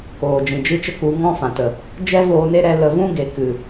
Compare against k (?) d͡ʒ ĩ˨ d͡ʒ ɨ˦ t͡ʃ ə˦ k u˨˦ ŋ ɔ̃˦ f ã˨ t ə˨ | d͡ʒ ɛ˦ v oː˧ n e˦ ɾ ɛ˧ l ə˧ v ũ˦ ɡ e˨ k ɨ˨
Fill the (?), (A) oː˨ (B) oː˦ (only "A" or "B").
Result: A